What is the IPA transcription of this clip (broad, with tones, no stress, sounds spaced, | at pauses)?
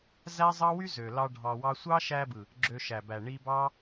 z æ˦ zˤ ɑ˦ w y˦ z ø˨ l ɑ˧ ɖʱ ɑ˧ w ɑ˦ sʷ ɑ˦ ʃ æ˧ b ɯ˨ | ɡ͡ǁ ø˧ ʃ æ˨ b æ˨ ɳ i˦ b ɑ˦